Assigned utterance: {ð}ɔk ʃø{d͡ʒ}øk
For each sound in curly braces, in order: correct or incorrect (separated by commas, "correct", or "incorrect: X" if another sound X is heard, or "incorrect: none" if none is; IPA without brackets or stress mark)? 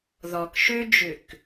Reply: correct, correct